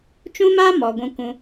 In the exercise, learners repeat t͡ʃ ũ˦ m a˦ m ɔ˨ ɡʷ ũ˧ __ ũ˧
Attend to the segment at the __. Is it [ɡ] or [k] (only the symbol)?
k